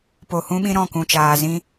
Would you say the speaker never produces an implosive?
no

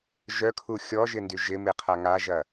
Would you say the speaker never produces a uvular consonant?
no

